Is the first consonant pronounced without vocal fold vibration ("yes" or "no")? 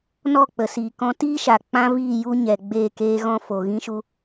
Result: no